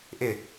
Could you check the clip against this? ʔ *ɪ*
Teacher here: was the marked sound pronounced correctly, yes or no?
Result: yes